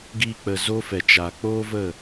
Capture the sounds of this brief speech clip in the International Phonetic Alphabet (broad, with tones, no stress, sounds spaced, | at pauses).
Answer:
ɡ iː˧ k͡p ə˨ z o˦ f ɛ˨ t͡ʃ aː˨ k͡p oː˦ v ə˦˨